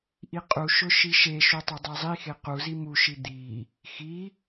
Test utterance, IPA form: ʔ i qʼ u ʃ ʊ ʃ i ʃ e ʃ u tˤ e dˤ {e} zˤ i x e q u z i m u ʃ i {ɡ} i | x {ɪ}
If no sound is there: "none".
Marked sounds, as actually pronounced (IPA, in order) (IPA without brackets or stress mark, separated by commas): e, d̪, i